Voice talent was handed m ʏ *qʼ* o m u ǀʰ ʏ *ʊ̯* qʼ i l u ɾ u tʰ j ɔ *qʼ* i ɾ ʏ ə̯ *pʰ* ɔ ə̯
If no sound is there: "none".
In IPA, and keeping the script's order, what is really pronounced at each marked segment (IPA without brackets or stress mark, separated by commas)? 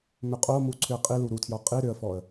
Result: qʼ, ə̯, qʼ, f